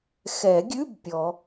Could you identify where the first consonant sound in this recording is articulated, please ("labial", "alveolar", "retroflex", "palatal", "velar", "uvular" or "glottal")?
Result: velar